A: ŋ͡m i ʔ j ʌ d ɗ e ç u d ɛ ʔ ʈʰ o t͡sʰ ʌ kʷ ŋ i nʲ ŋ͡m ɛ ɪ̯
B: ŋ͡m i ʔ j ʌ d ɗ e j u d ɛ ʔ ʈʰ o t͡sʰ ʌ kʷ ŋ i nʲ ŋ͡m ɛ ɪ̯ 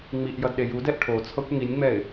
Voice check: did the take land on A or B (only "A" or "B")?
B